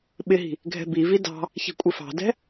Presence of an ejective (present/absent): present